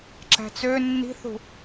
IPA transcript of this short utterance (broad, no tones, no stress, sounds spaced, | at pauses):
ǁ æ̤ t͡s ø nː i̤ θ ṳ